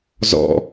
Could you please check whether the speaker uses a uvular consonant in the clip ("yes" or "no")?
no